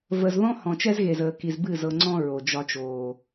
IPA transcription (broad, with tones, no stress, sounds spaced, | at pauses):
v ə˨ z ð ɔ̃˦ h ɔ̃˨ t͡ʃ ɛ˦ z ɣ e˨ z əː˨ k i˨ z b ɨ˦˨ z ɤ˨ ŋ͡ǀ ɔ̃˦ ɹ o˨ d͡ʒ ɒ˦ t͡ʃ oː˨